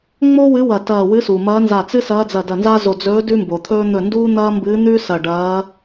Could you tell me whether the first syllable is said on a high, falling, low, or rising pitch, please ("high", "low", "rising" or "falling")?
high